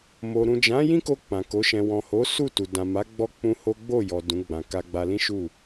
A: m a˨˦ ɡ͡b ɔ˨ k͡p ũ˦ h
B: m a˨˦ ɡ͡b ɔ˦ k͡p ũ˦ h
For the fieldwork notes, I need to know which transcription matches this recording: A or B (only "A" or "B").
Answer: B